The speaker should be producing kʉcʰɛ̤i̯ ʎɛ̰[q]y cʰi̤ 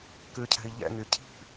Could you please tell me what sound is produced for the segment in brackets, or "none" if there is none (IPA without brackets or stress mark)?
ŋ